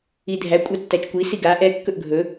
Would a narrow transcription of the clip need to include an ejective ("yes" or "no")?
yes